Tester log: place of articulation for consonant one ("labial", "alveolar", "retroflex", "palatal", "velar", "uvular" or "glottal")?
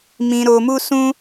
labial